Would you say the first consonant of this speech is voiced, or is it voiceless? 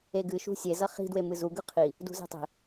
voiced